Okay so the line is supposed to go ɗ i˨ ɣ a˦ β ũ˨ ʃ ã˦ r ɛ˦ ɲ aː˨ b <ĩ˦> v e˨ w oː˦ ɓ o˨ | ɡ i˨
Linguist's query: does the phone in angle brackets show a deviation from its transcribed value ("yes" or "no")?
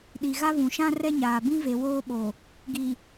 no